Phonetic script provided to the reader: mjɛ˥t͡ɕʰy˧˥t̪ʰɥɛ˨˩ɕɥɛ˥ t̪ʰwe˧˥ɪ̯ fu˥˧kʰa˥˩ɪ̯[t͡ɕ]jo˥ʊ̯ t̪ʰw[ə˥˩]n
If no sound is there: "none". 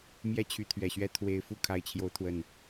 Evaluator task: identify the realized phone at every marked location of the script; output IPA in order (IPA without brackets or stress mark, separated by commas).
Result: t͡ɕʰ, ə˥˩